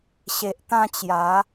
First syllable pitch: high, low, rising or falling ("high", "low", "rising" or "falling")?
low